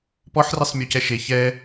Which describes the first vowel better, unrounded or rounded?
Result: rounded